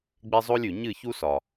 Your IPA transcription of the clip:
ɡ͡b e˦ zˤ o˦ lʲ ʉ˨ ɲ ɨ˦˨ ç u˦ s ɒ˨

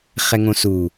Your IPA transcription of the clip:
χ ɛ ŋ õ s u

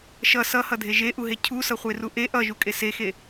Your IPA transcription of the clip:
ʃ ʌ s ʌ h ʌ dʱ e ʒ e ʔ u ɦ e cʰ u s ʌ χʷ e r u ʔ e ʔ ʌ ʒ u kʼ e s e x e

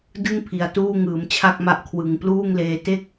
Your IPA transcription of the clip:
d ɯ˥˩ ŋ pʰ i˨˩ a̯ t uː˥˩ ŋ ɯː˩˦ m t͡ɕʰ a˥˩ k̚ m a˦˥ ʔ kʰ w ɯ˨˩ ŋ p l uː˥˩ ŋ l eː˧ t e˥˩ k̚

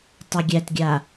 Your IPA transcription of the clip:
tˤ a ɡʲ æ t ɡʲ a

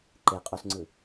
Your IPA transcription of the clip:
ǃ e qʼ o s ŋ͡ǀ ɯ

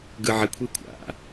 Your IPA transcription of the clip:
ɡ ɯ ʕ ɪ kʷʰ i kʷʰ a̰

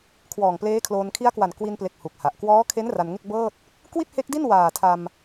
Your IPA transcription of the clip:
kʰ w ɔː˨˩ ŋ p l eː˦˥ kʰ l oː˧ n kʰ i˦˥ a̯ k w a˨˩ n k w i˧ n p l e˨˩ k̚ h u˨˩ k̚ h a˨˩ ʔ k w ɔː˦˥ kʰ e˦˥ n r a˧ n ŋ e˥˩ k̚ b ɤː˥˩ t̚ | k w i˥˩ t̚ h e˦˥ k̚ d i˥˩ n w aː˨˩ tʰ a˧ m

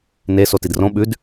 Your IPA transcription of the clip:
n e s o t i d r õ ɓ ʉ d

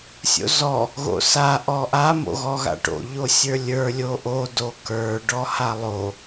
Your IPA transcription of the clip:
sʲ o̰ z ɔ | ɣ o̰ s a ʔ ɔ ʔ a m o̰ ɣ ɔ ɣ a̰ ʈ o̰ ʎ o sʲ ə˞ lʲ ə˞ lʲ o ʔ o d o k ə˞ ɖ ɔ h a lˠ o

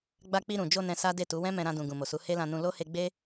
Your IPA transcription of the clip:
ɡ͡b a˧ k͡p i˧ ɾ ũ˨ d͡ʒ o˧ n ɛ̃˧ s a˦ d e˦˨ t u˨˦ w ɛ̃˦ m ɛ̃˧ ɾ ã˧ d ũ˨ ɡ ũ˨ m o˨ s u˨˦ h e˦ l ã˧ n ũ˧ l o˦ h e˧ ɡ͡b e˦

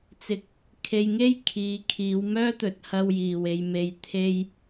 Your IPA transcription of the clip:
t͡s ɪ˧ k̚ | kʰ e˧ j ŋ e˥ j kʰ iː˨˧ kʰ iː˨˧ w m œː˥ t̪ ɵ˨˥ t̚ h ɐ˧ w j iː˨˩ w e˨ j m e˨ j t̪ʰ e˥ j

